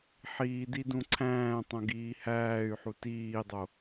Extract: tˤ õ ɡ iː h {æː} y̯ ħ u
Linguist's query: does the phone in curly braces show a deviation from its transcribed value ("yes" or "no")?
no